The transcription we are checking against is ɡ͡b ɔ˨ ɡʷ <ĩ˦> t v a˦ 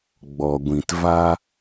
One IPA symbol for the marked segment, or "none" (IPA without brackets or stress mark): ĩ˨